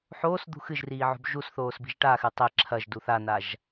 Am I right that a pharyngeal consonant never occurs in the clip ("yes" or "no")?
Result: no